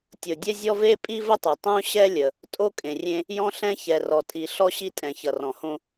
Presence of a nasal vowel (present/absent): present